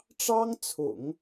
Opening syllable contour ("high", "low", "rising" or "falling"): high